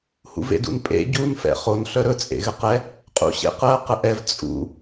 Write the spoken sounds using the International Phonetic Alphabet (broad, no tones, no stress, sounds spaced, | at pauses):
h ṵ v ḛ d ṵ n pʼ ḛ ɟ u n f ɛ̰ χ o n ɬ œ ɾ ɵ t͡sʼ ḛ ɣ ɘ q ɛ | qʼ ṵ ɕ ḛ q ɜ q ə ʔ ɛ v t͡sʼ ṵ